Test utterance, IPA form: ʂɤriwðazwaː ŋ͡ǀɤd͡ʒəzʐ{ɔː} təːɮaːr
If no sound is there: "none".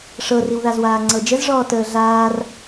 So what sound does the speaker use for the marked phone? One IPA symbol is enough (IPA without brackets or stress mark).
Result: ɔː